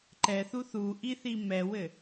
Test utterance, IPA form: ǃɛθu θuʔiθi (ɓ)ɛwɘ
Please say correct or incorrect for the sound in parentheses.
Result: incorrect